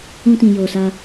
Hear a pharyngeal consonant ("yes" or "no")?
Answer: no